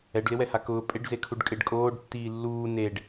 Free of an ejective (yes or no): no